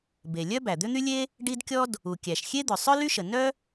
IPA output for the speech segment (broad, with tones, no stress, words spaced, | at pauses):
be˩lʲœ˥ bæ˩d̪ʏ˥ n̪y˥lʲe˥ | ɖi˥dkʲɔ˥d | u˩kʲæ˩ʃxʲe˥d̪ʏ˩ sˤœ˥ly˥ʃə˩ nœ˥